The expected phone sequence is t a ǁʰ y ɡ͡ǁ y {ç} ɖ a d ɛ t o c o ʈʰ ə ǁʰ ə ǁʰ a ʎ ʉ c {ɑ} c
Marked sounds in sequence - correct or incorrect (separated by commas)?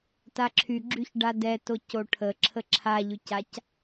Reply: correct, incorrect